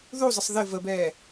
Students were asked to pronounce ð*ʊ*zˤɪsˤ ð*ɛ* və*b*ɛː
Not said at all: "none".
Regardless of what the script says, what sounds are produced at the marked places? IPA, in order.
u, ɪ, b

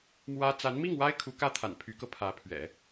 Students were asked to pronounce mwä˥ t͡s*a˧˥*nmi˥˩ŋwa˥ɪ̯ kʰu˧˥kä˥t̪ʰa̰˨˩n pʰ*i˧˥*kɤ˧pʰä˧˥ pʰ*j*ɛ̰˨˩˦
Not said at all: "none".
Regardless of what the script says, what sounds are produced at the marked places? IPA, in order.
a˧˥, y˧˥, ɥ

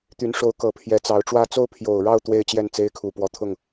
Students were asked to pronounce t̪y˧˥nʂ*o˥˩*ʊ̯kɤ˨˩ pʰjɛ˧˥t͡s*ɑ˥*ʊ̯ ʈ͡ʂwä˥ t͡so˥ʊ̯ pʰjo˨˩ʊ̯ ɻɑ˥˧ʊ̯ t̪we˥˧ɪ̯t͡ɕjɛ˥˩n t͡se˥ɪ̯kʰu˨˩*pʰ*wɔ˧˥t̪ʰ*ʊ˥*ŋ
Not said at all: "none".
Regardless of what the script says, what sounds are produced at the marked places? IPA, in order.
o˧˥, ɑ˧˥, p, ʊ˥˩

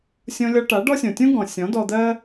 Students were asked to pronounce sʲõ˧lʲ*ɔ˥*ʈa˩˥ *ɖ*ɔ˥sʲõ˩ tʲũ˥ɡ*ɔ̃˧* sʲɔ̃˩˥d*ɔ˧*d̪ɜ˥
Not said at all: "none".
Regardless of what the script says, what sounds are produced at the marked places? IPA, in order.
ɔ˧, ɖ, ɔ̃˩, ɔ˧

